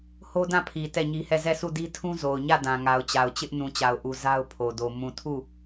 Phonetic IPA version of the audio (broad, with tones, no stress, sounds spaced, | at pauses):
h o˦ d ã˦˨ pʰ i˨ t ɛ˦˨ ɲ i˦ h ɛ˦˨ z ɛ˦˨ s u˦˨ d i˦ tʰ ũ˦ z o˨ ʊ̯ ɲ ä˦˨ d ã˨ ŋ a˨ ʊ̯ t͡ɕ a˨ ʊ̯ t͡ɕ ɪ˦ ʔ n ũ˨ t͡ɕ a˨ ʊ̯ ʔ u˨ z a˦ ʊ̯ pʰ o˨ d o˨ m ũ˨ tʰ u˦˨